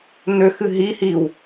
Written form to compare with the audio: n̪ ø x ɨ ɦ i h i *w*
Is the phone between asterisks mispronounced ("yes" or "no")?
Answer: no